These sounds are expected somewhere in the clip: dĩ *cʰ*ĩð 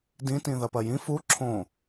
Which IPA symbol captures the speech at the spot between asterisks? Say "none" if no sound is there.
t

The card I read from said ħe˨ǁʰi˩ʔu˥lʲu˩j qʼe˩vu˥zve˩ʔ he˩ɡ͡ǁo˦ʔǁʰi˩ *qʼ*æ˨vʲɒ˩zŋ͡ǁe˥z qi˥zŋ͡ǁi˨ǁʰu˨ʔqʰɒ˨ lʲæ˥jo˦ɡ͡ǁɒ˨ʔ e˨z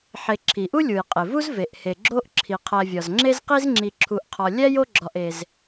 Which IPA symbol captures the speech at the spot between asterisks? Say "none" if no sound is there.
qʰ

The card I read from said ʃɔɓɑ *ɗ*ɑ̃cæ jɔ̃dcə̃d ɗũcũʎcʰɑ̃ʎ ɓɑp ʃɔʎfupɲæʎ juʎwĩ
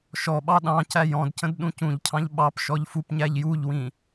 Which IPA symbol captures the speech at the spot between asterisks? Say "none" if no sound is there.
ɗ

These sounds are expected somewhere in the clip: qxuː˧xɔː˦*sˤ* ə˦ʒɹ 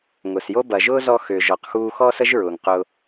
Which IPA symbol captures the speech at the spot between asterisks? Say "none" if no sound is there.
s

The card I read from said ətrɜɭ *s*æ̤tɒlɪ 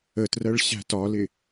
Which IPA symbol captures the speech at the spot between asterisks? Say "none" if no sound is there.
ɕ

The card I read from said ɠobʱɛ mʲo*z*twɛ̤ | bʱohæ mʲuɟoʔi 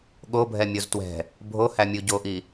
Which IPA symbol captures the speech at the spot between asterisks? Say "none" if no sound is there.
z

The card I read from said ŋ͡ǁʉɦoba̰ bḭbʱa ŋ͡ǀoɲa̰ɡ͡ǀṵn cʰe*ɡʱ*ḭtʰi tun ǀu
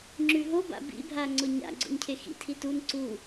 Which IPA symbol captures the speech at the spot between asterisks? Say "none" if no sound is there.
x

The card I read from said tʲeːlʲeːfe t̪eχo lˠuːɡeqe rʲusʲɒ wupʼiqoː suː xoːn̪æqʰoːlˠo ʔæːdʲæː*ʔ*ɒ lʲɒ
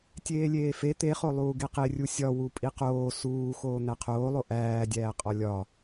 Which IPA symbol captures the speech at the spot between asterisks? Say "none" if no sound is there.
qʼ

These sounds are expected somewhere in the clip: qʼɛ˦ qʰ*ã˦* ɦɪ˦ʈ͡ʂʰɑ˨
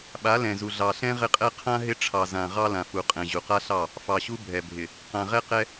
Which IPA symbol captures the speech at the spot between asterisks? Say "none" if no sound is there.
ã˦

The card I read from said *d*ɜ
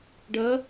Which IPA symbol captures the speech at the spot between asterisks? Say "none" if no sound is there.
ɖ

